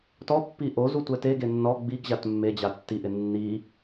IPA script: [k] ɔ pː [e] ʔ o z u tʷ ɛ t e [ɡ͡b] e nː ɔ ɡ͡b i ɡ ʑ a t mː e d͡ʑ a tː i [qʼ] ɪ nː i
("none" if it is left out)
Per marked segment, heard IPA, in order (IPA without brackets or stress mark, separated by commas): t, i, ɡ, ʔ